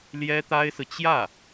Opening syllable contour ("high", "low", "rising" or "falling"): high